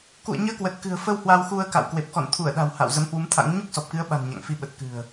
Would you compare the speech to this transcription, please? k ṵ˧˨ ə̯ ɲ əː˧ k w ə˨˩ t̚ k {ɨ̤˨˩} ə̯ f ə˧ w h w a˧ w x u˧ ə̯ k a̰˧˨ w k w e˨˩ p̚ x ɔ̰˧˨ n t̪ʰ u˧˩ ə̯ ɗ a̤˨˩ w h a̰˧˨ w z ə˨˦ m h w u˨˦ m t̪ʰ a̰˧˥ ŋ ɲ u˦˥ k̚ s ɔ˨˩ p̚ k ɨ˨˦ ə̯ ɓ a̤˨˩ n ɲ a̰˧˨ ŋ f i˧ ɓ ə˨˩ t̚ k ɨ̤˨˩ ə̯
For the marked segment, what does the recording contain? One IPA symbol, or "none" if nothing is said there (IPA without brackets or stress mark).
ɨ̤˨˩